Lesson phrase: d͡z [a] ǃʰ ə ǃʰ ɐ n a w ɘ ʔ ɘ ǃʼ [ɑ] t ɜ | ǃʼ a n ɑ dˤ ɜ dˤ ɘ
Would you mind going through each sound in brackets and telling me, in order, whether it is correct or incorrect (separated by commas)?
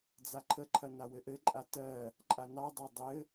correct, incorrect